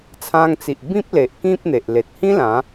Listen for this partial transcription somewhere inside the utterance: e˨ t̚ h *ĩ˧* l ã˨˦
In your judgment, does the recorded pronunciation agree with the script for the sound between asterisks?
no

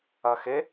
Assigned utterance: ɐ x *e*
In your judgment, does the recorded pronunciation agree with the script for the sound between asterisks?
yes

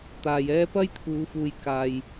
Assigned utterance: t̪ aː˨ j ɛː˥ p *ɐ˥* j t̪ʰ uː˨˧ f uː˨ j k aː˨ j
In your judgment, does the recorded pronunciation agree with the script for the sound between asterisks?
yes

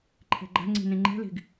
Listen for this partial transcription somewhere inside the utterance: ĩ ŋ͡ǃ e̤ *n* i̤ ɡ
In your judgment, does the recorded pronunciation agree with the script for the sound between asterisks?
no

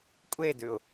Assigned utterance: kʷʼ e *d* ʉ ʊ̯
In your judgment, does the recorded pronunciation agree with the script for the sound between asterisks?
yes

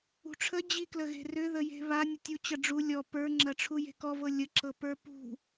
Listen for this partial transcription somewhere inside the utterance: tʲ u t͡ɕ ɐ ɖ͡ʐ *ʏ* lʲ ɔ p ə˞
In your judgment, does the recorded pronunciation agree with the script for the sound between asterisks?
no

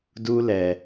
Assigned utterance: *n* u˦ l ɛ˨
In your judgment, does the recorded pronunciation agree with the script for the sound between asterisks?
no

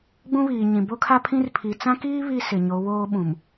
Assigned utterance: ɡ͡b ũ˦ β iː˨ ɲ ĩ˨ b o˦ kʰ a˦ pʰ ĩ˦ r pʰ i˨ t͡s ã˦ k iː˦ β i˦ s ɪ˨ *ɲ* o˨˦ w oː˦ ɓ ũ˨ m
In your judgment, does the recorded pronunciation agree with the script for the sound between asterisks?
yes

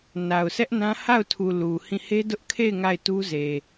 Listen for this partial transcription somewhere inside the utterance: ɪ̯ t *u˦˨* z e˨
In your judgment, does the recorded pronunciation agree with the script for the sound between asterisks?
no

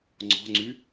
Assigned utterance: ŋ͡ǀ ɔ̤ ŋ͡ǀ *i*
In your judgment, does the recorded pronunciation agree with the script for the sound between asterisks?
no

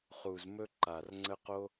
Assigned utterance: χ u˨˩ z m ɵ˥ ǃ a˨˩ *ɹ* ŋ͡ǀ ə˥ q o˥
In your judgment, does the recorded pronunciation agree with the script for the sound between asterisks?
no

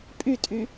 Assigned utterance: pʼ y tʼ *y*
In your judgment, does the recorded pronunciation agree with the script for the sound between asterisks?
yes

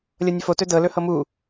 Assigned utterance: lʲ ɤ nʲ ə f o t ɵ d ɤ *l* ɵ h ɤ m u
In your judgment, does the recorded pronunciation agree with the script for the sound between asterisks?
yes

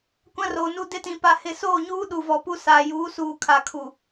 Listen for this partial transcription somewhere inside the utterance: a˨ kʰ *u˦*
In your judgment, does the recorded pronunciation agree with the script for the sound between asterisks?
no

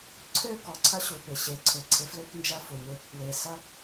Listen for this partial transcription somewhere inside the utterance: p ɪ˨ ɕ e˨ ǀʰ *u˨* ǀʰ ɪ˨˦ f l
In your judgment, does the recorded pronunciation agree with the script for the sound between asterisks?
no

